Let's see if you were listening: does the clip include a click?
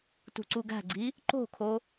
yes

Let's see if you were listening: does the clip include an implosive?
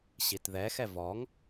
no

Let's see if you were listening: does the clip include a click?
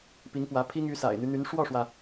no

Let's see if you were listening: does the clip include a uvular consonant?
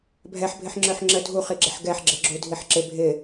yes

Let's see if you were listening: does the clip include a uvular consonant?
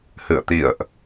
no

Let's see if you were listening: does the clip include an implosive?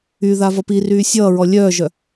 no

